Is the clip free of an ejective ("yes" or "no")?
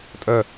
no